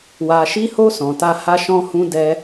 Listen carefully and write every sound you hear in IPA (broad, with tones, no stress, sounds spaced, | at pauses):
w a˨ ʃ i˧ h o˧ s ɔ̃˨ t a˧ h a˦ ʃ ɔ̃˧ h ũ˧ d ɛ˧